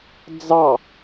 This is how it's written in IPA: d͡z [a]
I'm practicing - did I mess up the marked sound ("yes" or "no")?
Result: yes